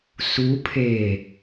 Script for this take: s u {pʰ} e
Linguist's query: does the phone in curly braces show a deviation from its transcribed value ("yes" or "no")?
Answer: no